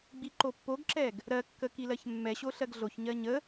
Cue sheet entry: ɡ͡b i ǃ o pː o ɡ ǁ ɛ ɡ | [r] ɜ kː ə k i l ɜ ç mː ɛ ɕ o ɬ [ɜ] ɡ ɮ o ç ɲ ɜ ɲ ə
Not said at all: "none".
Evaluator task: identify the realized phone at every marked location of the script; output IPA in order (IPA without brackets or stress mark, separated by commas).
ɾ, ɜ